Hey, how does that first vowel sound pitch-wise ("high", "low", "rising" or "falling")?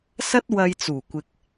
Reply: high